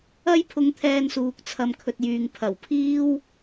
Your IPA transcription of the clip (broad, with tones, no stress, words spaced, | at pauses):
ɐ˥jpʰʊ˧ŋt̪ʰɛː˧nsuː˨k̚ t͡sʰɐ˧mkʰɵ˧t̚jyː˨ŋ pʰɐ˨˩wpʰiː˥w